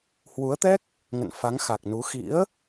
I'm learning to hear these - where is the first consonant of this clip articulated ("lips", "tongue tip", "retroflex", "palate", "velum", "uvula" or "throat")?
throat